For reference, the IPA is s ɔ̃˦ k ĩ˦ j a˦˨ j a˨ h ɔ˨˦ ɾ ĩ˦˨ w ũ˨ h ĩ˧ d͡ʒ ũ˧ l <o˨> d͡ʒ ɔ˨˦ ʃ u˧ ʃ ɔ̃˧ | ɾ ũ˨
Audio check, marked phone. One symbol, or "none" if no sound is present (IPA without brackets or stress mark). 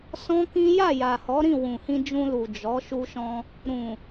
u˨